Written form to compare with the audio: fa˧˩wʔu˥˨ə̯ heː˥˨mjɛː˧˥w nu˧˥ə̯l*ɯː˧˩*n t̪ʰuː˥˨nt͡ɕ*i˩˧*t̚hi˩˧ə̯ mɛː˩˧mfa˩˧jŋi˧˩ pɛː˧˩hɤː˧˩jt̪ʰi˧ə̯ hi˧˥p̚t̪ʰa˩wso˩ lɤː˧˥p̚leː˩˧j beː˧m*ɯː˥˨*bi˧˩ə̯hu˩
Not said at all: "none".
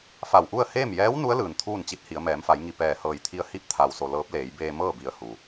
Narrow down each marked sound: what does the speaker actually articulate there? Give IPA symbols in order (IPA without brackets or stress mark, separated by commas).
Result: ɯː˩, i˧˥, ɤː˥˨